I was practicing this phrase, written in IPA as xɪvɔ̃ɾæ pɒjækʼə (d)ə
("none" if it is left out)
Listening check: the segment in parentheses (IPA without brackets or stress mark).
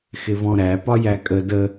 d